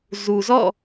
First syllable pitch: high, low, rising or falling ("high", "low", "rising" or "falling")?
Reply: low